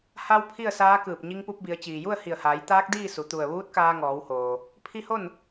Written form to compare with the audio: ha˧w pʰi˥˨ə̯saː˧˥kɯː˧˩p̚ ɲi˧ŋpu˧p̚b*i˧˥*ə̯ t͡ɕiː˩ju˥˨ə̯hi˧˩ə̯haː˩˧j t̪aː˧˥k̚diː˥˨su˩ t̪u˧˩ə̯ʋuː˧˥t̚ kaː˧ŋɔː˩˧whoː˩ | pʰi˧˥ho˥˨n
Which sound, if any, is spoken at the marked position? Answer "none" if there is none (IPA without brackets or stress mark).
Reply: i˩˧